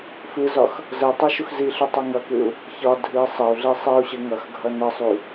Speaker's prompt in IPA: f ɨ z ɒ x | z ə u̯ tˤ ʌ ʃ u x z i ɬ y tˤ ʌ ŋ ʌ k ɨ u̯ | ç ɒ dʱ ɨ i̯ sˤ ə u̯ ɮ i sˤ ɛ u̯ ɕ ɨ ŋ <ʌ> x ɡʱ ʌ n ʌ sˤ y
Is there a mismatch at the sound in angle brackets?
no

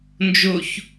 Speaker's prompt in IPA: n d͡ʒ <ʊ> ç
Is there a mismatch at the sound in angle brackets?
no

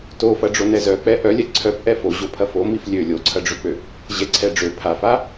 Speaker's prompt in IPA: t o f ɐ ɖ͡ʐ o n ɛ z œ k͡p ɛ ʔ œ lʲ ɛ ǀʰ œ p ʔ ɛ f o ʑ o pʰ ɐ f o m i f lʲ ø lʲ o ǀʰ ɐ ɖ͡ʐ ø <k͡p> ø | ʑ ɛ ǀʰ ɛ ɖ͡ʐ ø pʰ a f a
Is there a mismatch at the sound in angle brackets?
no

